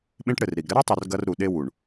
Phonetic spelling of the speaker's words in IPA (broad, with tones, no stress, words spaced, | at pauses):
ɓẽ˦ʈɽɘ˨rɾi˨ɡ ɾɘ˦ɾɔ˦tˤu˨r ɡɐ˦r ɾu˨ ɗe˦wu˨ɳ